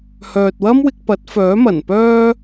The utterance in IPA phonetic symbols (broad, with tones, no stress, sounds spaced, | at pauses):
h œː˨ t̚ w ɐ˥ m w ɪ˧ k̚ p ɐ˨˥ t̚ f œː˨˥ m ɐ˨˩ n p œː˥